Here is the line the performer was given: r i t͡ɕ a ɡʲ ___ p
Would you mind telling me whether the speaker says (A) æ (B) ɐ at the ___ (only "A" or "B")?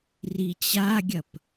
B